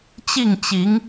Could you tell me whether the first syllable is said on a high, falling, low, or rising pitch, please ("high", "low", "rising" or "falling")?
falling